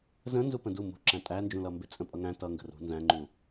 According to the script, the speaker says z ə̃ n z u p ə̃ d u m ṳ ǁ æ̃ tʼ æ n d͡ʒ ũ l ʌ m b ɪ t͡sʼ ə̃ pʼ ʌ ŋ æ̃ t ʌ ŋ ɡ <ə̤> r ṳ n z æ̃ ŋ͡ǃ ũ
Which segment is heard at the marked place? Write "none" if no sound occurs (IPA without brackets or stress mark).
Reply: ə̤